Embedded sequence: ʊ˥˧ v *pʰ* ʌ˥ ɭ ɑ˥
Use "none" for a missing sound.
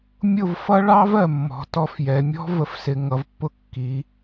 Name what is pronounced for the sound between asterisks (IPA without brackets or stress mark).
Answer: f